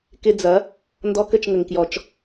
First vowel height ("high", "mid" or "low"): high